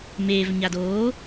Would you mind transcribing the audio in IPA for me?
m eː v ɲ a d oː

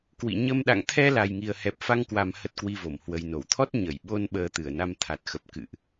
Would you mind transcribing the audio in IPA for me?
k w ḭ˧˨ ɲ ə˧ m ɗ a̰˧˨ ŋ t̪ʰ ɛ˧ l a˨˩ j ŋ i˨˩ ə̯ h ɛ˨˩ p̚ f a˧ ŋ k w a˨˩ m h ə˦˥ t̚ k w i˧ v o˧˩ m h w ə˨˩ j n o˧˩ w t̪ʰ ɔ˦˥ t̚ ɲ ə˧˩ j ɓ o˧ n ɓ əː˧ t̪ ɨ˧˩ ə̯ n a˧ m t̪ʰ a˨˩ t̚ x ə˨˩ p̚ k ɨ̰˧˨ ʔ

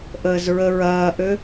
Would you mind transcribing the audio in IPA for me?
ʔ əː z ɹ ə ɹ ɐː ʔ ø

